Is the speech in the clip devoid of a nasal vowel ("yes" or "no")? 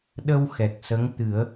yes